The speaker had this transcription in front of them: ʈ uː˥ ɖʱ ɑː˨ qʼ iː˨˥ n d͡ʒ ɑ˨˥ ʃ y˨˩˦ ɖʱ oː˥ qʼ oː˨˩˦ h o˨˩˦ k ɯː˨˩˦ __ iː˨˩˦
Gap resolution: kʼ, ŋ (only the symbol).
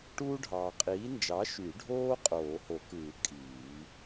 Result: kʼ